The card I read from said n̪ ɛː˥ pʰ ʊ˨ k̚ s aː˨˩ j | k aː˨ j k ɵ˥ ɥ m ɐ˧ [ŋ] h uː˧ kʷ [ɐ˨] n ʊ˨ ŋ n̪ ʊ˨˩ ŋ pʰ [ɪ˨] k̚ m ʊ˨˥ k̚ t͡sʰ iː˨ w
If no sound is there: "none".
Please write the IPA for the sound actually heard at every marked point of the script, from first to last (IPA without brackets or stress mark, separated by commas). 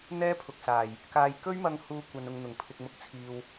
ŋ, ɐ˨, ɪ˨